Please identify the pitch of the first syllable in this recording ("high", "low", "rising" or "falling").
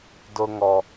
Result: high